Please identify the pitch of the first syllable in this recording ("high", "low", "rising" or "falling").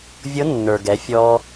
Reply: rising